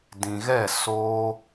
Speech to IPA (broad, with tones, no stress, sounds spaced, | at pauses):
d ĩ˨ ɣ ɛ˦˨ s oː˧